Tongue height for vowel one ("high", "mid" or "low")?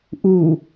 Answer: high